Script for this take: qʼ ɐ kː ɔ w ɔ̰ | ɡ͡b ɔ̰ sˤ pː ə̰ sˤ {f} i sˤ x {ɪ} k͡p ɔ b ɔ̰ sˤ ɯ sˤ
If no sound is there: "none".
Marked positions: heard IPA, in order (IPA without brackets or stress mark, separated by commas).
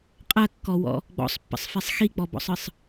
f, i